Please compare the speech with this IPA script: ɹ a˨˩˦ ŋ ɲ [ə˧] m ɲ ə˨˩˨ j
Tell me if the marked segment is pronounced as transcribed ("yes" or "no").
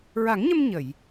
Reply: yes